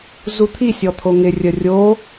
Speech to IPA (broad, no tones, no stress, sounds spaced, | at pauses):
z u t̪ʰ i sʲ ɔ t̪ʰ o ŋ ɪ rʲ ə rʲ o